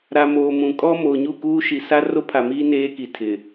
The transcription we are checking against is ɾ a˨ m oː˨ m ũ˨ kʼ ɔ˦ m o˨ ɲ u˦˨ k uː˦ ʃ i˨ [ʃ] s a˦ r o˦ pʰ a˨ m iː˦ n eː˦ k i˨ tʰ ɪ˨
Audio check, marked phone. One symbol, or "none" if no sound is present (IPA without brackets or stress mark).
none